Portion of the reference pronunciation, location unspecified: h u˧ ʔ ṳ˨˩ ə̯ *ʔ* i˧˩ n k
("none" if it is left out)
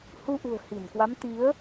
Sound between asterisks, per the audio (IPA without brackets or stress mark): h